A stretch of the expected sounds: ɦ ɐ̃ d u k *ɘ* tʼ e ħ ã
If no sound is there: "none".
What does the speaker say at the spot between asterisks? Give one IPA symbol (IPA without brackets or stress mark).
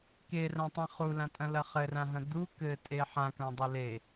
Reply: ɘ